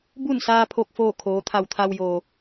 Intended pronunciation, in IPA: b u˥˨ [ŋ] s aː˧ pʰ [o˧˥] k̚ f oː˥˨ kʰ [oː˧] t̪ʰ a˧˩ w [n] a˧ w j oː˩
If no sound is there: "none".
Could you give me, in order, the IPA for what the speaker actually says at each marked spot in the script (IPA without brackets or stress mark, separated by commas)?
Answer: n, o˧˩, oː˩˧, t̪ʰ